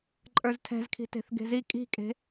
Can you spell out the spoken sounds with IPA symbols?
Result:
ǃʼə˞ztʰɛ̤zkʰi̤ te̤θɡe̤zi kʼi̤kʼe̤

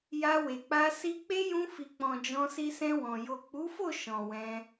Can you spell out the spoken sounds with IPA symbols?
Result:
ja˧we˨k͡pa˧ si˧k͡pe˦ jũ˧ fi˨k͡pɔ̃˨ d͡ʒɔ̃˧si˧sɛ̃˧wɔ̃˨ jo˨k͡pu˨˦fo˦˨ ʃɔ̃˨wɛ̃˧

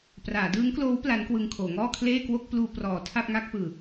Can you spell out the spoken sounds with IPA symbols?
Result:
praː˩˦dɯː˦˥ŋkloː˦˥w pla˦˥nkwɯ˧ŋkʰoː˩˦ŋɔː˥˩ kʰleː˥˩kwo˥˩k̚ pluː˧prɔː˩˦ tʰa˥˩p̚ŋa˥˩k̚ pɯː˨˩

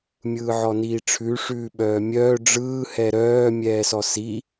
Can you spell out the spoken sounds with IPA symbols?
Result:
mʲɯːʕɔniːʈ͡ʂʰʉ ʂʉːɓœːmʲœː ɖ͡ʐɯː hɛɾœː mʲɛːsɔsi

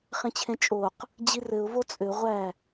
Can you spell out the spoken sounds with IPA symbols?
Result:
χẽt͡ɕʰẽt͡ʃʼoq | d͡ʑirɘʊ̯ vot͡sʼø ʁʷæ

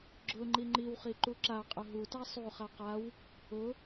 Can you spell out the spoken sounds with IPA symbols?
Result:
ɡ͡ǁʊ ŋ͡ǃiŋ͡ǃiwχi ǃuǁaqʼʊ ɦuta sˤuχa qaw | ʊ

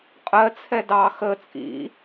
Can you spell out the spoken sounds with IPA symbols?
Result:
qʼɜt͡sʰɛ dɑ xə t͡sʼḭ

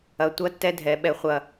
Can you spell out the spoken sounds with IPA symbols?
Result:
ɐ˨tʷɐ˧tːɛ˧dʱɛ˨ ɓɛ˨χʷɐ˨

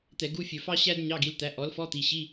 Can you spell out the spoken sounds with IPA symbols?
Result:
t̪ɛ˧˩˧ɡu˧˥˧ fʲɵ˧˩˧fɑ˥ ɕæ˥d ɲɑ˧˥˧ɡi˩˥lt̪æ˩˥ ʔɔ˩˥lfɔ˧˥˧t̪i˩˧˩ɕi˧˥˧

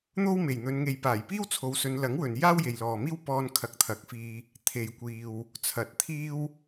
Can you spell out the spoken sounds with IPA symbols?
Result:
n̪o˥wme˨˩jn̪ɵ˨˧nŋe˨j paː˨˩jpiː˥wt͡sʰo˨˧w sɵ˨˧nlɐ˨˥ŋwɵ˨n jaː˥wje˨jlɔː˨miː˥w pɔː˥n kʰɐ˧k̚t̪ʰɐ˨˥k̚fiː˧ | t̪ʰe˨jkʷiː˨w | t͡sʰɐ˨˥t̚ t̪ʰiː˥w

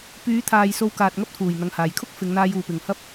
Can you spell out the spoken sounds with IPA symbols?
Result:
pyː˨˧t̪ʰaː˨j so˧wkaː˨t̚ŋɐ˥p̚t̪ʰuː˨˩j n̪ɐ˨ŋhaː˨˩jkʰʊ˥k̚ fɪ˨˧ŋn̪aː˧j uː˨˩pɪ˨˩ŋhɐ˥p̚

